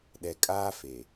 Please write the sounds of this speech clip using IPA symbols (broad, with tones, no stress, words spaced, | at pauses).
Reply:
ɗɛ˨kʼaː˦fe˨